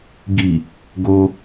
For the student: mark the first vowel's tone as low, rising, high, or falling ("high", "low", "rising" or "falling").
low